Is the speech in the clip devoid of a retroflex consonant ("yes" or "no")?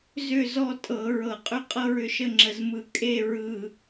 yes